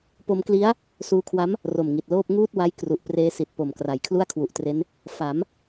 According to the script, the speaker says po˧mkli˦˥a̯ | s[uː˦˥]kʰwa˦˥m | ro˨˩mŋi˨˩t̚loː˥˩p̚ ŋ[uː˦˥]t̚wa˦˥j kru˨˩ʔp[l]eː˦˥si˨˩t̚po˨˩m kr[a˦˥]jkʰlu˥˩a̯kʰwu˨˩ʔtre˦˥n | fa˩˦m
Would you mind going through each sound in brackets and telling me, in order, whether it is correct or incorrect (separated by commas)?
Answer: incorrect, incorrect, incorrect, incorrect